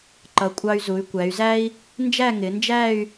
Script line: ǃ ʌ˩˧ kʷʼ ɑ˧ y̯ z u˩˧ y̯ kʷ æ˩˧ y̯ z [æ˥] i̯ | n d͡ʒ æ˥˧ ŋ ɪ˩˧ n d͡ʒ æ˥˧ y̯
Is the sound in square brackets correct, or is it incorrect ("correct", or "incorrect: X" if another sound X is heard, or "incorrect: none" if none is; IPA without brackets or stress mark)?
correct